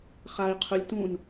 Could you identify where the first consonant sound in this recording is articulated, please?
uvular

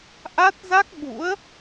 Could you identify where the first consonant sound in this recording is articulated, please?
glottal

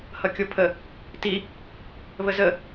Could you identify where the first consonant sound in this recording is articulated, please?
glottal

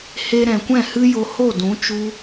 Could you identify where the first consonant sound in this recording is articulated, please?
glottal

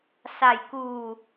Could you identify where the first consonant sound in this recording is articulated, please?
alveolar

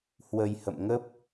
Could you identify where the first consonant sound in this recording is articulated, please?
glottal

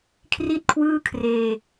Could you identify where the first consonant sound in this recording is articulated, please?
velar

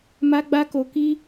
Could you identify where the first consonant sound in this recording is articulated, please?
labial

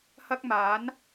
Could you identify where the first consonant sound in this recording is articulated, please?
glottal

